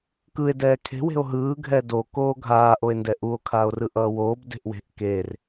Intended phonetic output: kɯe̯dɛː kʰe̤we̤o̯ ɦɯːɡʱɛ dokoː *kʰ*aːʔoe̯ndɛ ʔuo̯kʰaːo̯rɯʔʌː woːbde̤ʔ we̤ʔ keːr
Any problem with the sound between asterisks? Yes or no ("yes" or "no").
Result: yes